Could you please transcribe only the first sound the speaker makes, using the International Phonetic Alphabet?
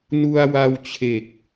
n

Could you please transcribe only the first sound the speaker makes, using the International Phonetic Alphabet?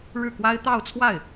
ɻ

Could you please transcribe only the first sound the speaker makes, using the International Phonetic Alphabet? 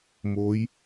m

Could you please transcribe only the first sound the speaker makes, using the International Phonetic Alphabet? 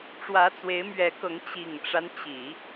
ʈ͡ʂ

